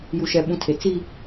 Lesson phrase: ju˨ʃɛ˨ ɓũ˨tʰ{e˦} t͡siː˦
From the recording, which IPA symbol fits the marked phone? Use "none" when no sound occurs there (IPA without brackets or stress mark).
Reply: e˨